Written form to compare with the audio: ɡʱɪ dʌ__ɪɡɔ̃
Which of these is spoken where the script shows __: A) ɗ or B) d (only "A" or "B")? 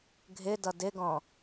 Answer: B